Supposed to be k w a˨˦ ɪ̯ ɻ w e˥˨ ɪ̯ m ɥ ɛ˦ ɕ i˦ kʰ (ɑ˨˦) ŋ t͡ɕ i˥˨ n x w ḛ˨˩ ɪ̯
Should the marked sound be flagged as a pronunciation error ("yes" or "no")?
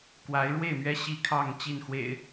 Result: yes